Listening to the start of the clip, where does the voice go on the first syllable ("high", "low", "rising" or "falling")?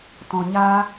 low